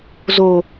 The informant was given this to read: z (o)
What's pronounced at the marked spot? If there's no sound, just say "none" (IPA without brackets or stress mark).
o